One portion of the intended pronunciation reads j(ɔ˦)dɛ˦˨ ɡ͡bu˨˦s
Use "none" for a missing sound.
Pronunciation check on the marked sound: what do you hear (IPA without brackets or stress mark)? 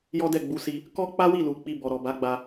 ɔ˦